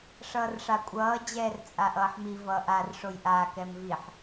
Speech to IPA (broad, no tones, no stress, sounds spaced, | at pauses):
ʂ ʌː r ʂ a kʷʼ ʌː d͡ʑ ɛː r t͡sʼ a ʔ ʌː ħ m i v ʌː ʔ a r ʂ o j ʔ a k ɛ m v i ħ